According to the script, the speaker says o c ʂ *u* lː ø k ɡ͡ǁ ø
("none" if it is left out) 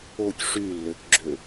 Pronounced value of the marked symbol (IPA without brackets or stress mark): y